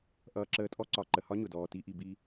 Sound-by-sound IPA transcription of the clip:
ʔʌː˧ǁəː˧tʼɔ˦ ǀɒ˨ ǃə˨hɒ˦ ɲʊ˨dɔː˨ti˧ʔi˨ bi˧

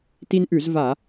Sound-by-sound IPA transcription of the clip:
ti˦nʔʉ˧˩˧zva˧˩˧

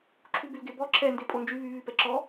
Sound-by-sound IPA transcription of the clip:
ǁʰubylɡebɔ ǁʰɛ ndepʼond͡ʒy βy βypɛǁɔ

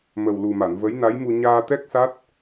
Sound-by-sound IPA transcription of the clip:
mə˨˩wlu˨˩ma˨˩˨n və˧˥jna˧˥jmu˧ ɲaː˧t̪ɛ˦˥k̚sa˦˥t̚

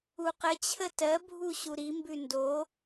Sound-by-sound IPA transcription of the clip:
uqət͡ɕʰə tɜbʱu ɕuɾimbʉ ndo

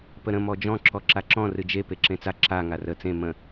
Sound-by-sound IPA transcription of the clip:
pəɾə̃ mɔd͡ʒɔ̃ ǁɔǁaǁɔ̃ rɨd͡ʒe peǁẽt͡sa ǁa ŋarə t͡sẽ mə̃

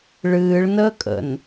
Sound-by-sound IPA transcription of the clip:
ɭɨːɭnəːkʼə̰n

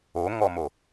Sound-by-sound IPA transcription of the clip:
oŋɔmo

